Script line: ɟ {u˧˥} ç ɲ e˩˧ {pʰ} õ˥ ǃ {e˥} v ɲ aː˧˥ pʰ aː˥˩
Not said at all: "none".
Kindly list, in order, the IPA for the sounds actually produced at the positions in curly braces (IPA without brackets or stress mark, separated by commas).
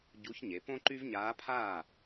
u˧˥, p, y˥